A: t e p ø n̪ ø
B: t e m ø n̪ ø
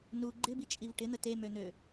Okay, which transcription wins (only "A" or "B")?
B